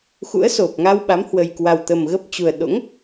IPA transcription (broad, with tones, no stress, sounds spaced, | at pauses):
x ṵ˧˥ ə̯ s o˨˩ p̚ ŋ a˧ w ɓ a˨˦ m h w ə˨˩ j k w a˨˩ w t̪ ə˨˩ m ɣ ə˦˥ p̚ t͡ɕ u˨˩ ə̯ ɗ o̰˧˥ ŋ